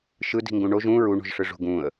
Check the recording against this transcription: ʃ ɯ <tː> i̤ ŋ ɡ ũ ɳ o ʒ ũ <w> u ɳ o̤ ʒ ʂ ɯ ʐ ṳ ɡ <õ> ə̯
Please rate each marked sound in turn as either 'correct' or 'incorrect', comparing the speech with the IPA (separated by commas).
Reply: incorrect, incorrect, incorrect